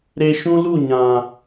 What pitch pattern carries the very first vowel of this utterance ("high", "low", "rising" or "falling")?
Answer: high